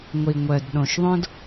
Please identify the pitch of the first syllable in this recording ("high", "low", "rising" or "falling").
low